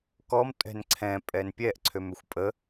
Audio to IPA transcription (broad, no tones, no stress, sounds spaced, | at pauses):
k ɔ m tʼ ɛ̤ n ǀʰ ɛ̃ pʼ ɛ n pʲ ɛ ʔ ǀʰ ø m ʏ xʷ pʼ ə